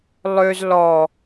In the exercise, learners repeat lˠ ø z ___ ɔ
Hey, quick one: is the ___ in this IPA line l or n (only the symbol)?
l